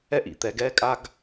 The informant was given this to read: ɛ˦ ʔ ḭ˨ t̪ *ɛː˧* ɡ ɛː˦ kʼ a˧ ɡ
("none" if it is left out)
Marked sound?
ɛː˧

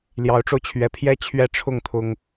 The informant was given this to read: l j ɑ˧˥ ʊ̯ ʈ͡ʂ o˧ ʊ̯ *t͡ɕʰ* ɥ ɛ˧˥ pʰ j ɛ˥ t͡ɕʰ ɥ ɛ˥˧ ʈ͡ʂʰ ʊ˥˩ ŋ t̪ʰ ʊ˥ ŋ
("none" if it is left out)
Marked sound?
t͡ɕʰ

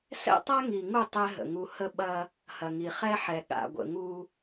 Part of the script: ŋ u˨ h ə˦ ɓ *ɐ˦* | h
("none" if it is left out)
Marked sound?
ɐ˦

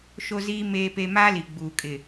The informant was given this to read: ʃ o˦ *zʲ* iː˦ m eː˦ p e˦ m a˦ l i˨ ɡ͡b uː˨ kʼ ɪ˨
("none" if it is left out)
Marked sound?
z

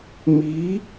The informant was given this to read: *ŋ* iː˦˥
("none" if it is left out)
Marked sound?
m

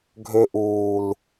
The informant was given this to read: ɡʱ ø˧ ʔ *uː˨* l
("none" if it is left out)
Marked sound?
uː˨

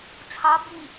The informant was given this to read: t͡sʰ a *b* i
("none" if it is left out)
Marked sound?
b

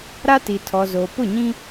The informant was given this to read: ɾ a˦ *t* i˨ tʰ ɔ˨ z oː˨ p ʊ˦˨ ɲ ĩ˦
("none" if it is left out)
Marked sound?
t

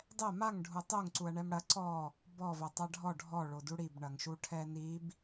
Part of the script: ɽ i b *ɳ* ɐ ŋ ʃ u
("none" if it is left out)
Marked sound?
ɳ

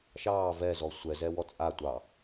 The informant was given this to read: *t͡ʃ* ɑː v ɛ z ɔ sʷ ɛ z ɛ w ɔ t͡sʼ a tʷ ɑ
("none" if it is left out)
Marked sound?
ʃ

